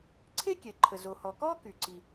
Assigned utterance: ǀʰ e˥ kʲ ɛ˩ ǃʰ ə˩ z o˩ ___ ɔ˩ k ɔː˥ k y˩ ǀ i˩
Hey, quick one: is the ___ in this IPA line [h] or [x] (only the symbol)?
h